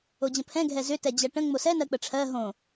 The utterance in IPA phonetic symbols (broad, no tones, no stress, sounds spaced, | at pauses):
o d͡ʑ ə̃ pʰ ɛ̃ ɡʱ ɛ z ʏ t ɛ d͡ʑ ɜ ʈ ə̃ ŋ͡m o s ɛ n ɜ k͡p ə ʈ͡ʂʰ ɜ ɦ õ